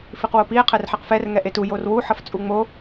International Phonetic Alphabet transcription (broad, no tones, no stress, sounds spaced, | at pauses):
f i q w o p i e̯ qʰ ɛ r ħ e q f ɛ r ŋ ɛ ʔ e t u j o r w u ħ ʌ f t͡sʼ u ŋ͡m o